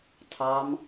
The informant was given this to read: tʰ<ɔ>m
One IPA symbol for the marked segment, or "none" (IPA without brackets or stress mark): ɑ